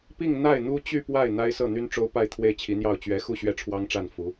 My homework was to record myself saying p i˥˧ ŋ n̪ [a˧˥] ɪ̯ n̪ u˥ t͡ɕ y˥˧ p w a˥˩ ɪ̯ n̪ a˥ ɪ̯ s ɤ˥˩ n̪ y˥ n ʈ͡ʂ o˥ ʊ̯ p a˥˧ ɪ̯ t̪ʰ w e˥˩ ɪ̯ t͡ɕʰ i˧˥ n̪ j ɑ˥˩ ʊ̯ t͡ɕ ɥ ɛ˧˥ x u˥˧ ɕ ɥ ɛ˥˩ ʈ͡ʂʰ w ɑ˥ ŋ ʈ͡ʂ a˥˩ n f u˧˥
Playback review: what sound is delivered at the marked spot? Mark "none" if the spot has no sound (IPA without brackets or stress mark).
a˥˩